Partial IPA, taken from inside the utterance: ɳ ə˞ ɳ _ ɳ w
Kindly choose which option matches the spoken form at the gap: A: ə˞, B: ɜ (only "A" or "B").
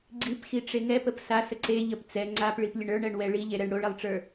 B